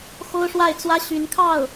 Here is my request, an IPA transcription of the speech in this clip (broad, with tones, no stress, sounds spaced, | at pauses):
x o˥ ʊ̯ ʂ w a˥˩ ɪ̯ t͡s w ä˥ ɕ y˧˥ n kʰ ɑ˥˩ ʊ̯